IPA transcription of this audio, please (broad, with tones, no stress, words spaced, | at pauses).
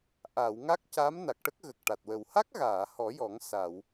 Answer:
ʔa˨˩˨w ŋa˦˥k̚ca˧˥m na˨˩k̚ʈə˦˥k̚ ɣə˨˩k̚ʈa˨˩t̚wə˨˩w ha˦˥k̚ɣaː˨˩˨ hɔ˨˩˦jɔ˨˩˦ŋ sa˨˩˨w